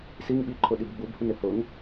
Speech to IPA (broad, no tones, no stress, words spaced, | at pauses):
siŋɓiǃʰʊ ɗibɡ͡bubhun ɪhʊŋ